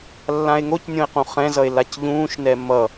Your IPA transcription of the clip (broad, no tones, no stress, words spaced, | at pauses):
lːãe̯ŋocnʲõe̯qũ χɛ̃zʌe̯ lacʎũːʃnɛ mʌ